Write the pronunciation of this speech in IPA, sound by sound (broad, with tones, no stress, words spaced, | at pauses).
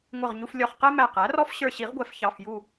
ŋʷʌ˧˩ʁɲu˧f lʲɔ˧˩χ qɛ˥mæ˧˩qæ˩˥rɔ˥f ɕə˞˧˩ɕi˨˩˦ʁɡʷɛ˨˩˦f çɑ˩˧˩fju˧˩